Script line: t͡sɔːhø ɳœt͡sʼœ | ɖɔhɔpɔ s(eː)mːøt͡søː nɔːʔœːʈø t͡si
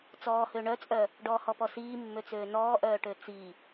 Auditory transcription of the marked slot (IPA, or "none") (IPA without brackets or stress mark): iː